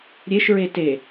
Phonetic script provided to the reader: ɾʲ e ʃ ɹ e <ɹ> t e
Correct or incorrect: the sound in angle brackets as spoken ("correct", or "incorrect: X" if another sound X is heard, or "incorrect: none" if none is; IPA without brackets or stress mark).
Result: incorrect: none